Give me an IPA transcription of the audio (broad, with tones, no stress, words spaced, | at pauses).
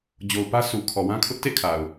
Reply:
d͡ʑo˨ʊ̯pä˦ su˨kʰɔ˨wã˦kʰʊ˦ʔ tḛ˦˨kʰa˨ʊ̯